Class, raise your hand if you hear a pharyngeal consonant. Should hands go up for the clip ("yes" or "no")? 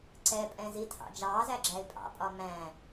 no